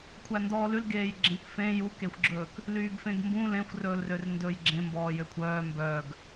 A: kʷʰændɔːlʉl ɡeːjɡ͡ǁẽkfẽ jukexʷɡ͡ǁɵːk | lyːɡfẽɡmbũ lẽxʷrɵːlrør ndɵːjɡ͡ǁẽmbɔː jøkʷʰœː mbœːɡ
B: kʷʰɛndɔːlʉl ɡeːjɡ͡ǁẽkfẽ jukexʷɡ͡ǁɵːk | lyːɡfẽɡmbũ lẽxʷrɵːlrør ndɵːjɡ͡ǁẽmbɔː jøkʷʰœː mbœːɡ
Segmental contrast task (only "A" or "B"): A